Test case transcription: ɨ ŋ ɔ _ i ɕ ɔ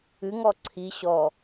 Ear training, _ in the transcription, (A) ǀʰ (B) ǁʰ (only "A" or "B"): A